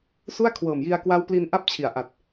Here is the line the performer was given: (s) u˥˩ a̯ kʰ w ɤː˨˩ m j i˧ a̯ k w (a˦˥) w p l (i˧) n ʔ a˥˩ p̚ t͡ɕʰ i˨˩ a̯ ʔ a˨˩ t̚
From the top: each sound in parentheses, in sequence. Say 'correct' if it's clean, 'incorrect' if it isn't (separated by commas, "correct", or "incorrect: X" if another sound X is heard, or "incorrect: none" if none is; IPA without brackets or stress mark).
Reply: correct, correct, correct